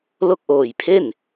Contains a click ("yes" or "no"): no